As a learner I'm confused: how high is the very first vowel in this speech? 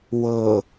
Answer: mid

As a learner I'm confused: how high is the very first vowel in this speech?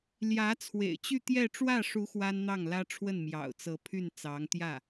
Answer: low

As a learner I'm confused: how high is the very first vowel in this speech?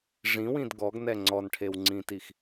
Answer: high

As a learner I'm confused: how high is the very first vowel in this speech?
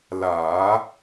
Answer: low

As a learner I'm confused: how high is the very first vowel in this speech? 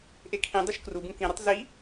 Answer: mid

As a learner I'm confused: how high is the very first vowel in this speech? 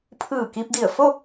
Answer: high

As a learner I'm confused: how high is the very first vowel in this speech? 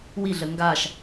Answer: high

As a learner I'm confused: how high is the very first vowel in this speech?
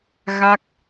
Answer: low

